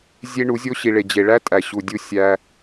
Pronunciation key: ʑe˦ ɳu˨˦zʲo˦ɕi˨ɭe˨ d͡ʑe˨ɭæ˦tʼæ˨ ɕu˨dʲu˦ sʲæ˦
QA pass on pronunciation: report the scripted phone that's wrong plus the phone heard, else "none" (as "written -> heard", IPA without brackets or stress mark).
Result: ʑ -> zʲ